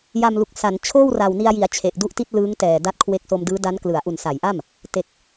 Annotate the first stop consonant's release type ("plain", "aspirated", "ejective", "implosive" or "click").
plain